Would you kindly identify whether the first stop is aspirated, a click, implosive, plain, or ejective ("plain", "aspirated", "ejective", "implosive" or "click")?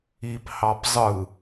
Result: plain